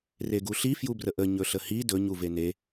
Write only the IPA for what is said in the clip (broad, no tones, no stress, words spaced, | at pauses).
reɡuɬi fjubrəʔə ɲɵɬəhi dɵɲ uvene